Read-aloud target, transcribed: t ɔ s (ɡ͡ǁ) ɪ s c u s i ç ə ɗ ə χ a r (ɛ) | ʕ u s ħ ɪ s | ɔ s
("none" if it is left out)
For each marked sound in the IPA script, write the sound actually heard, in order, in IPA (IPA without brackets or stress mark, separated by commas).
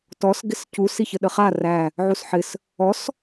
ɡ, æ